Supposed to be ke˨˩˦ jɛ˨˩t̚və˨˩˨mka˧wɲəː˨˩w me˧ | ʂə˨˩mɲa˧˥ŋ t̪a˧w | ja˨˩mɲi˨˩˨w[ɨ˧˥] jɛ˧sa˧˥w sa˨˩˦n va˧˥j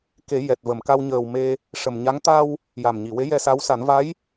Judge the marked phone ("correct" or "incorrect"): incorrect